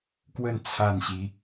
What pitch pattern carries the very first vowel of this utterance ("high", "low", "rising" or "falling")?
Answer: falling